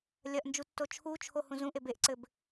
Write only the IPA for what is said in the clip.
lʲɐʔnd͡ʒutːo t͡ʃʰut͡ʃʰohũ zũʔeb eʔǀɘb

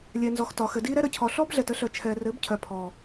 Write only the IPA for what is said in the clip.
lʲɛ˨nzɔ˨x tɒ˨xɘ˨diː˦ɾɛ˦ ɾə˨cʰɔ˨ɬɔ˦bɮɛ˨t ə˨˦ɬœ˨t͡ʃʰɛː˨rɘ˨˦b cʰœ˨pʰɔ˨

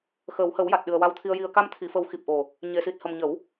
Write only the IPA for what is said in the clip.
xəː˨˩˦whə˨˩˦wja˨˩t̚ɗɨ˨˩ə̯ wa˧wt̪ʰi˧ə̯ji˧ə̯ ka˧mt̪ʰi˨˩˨fə˨˩˦w xi˨˩p̚ʔo˨˩ | ɲe˨˩˨si˨˩t̚ hə˨˩mɲə˨˩˦w

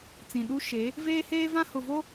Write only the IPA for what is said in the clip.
t͡sĩ˨ ɗu˦ ʃe˨˦ | veː˦heː˦vã˦ hʊ˨vo˦

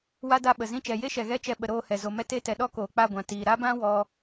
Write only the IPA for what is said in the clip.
wa˦da˦˨ɓə˨ zĩ˧t͡ʃɛ˨je˦ʃɛ˨ ɣɛ˦t͡ʃɛ˧ ɓə˨ɾoː˧ hɛ˨ zo˨mɛ˦te˦tɛ˨ ɗɔ˦koː˨k͡pa˦˨ ɡʷã˨tiː˨ ɾa˦bã˦ wɔ˦

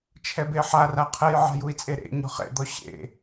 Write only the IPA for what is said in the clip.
t͡ʃʰɛbeħara qʰɛjʕa̤jui̯t͡sʼe ɾḛ ɲɔ̤χḛd̪ɔ ɕḛ

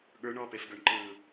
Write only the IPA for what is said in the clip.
ɠə˞ɳ ɔpefɡə˞ɳǃɯː

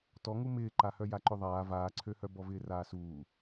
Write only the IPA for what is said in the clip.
tɔŋu mɪːǃahœ jaǃʏðˤaː vaːǀʰøhœ bɔvɪːraːsuː

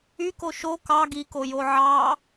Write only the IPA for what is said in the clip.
yko ʃo kɑ ɡikojo ʕɑ

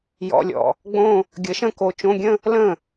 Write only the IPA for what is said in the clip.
jɔ̰˧˥˧lʲɔ̰˧˩ | ɡ͡bõ˥˧ | ɡʲə˨˥ʃə̃˥˧ko˨˥ t͡ʃõ˧˥˧ɡʲə̃˥˧ | lə̃˥˩

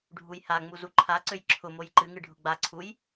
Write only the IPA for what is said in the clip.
ɖʱujhaŋ͡mu zuǃʰaǀøj ǁʰʊmoj ǃɨŋɨ ɖʱʊɡ͡baǀʰuj

